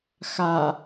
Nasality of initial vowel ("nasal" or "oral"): oral